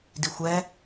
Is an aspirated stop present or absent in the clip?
absent